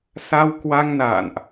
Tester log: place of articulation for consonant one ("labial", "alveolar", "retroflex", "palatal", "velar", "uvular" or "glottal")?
alveolar